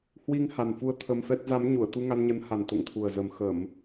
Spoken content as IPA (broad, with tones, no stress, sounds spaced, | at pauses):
h w i˧ ŋ h a˨˩ n f u˨˦ ə̯ t̪ʰ ə˧ m f ɛ˦˥ t̚ z a˨˦ m ɲ u˧˩ ə̯ t̪ u˧ ŋ a˧ n ɲ ə˨˦ n h a˨˩ n t̪ o̰˧˨ ŋ t̪ʰ u˨˩ ə̯ z ə˨˩ m x ə˧˩˨ m